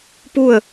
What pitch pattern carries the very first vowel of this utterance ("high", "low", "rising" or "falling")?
falling